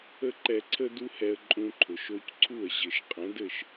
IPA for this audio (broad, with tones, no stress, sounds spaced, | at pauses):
ə˥ ǃ ɛ˧ ǀʰ ə˥ d u˥ h ɛ˧ ə̯ ǃʼ ũ˧ ǃʰ ʊ˩ ʃ o˧ c ǀʰ u˥˩ ə̯ ʑ ɘ˩ ʃ qʼ ə̃˩˥ d ɘ˥˩ ʃ